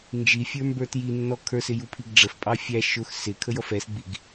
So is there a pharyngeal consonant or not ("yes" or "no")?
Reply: no